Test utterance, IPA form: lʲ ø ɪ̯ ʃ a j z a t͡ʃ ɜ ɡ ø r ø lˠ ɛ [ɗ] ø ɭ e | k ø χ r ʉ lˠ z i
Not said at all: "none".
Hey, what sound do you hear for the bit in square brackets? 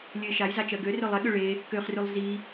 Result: ɠ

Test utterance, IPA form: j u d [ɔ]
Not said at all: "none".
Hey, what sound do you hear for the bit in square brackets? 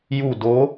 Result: o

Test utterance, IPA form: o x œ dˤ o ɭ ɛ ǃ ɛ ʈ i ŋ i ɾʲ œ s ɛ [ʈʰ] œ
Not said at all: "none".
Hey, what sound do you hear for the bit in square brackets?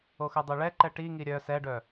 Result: ɖ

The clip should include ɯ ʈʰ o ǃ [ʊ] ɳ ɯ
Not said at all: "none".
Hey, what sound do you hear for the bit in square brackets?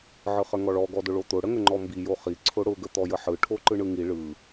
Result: ɯ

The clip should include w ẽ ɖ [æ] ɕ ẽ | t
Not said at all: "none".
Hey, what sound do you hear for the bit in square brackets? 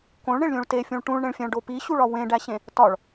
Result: æ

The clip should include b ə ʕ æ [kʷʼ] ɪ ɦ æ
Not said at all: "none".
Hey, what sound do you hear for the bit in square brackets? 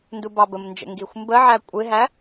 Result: kʷʼ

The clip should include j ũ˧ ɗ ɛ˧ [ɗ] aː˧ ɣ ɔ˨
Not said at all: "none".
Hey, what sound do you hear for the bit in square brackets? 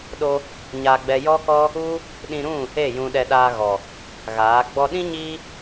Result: ɗ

